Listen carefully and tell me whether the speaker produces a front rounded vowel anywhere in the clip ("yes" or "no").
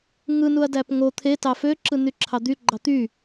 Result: yes